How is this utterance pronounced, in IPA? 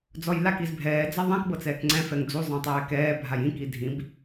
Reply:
d͡z ɔ j l a k i z bʱ ɛː d͡z a ðˤ ɛ̃ k b ɤ t͡s ɛː k ŋ͡ǀ ɛ̃ f ɛ ŋ d͡z u zˤ ẽ tˤ ɛː k ɛː bʱ a j ĩ k i dʱ ĩ b

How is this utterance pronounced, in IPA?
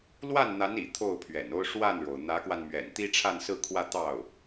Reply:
l w a˥˩ n n̪ a˧˥ n ḭ˨˩ t̪ʰ o˥˩ ʊ̯ pʰ ɥ ɛ̰˨˩ n o˥ ʊ̯ ʂ w a˥˩ n ɻ o˩ ʊ̯ n̪ ä˧˥ k w a˧ n m ɥ ɛ̰˨˩ n t̪ i˥ ʈ͡ʂʰ a˥˧ n s ɹ̩˥˧ kʰ w ä˥˧ t̪ ɑ˥˩ ʊ̯

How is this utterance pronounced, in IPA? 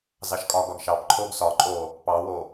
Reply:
z ɑ ʃ kʼ ɒ ɡ ɒ ɡ ʃ ɑ p ǃʰ o ɡ s ɒ ǃʼ o | p ɑ w o

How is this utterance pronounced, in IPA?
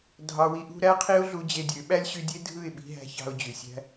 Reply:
dʱ ɑ˧ w i˦ ʔ ṳ˦ ɾ æ˦ qʰ i˦ ʊ̯ ɮ u˧ d͡ʑ e˧ dʲ ø˨˦ ɓ æ˦ lʲ ɕ y˧ dʲ e˦ dʱ ɯ˦˨ ɪ̯ ɓ i̤˧ ɦ æ̤˧ ç ɑ̤˧ ʊ̯ d͡ʑ y˨ sʲ æ̤˦

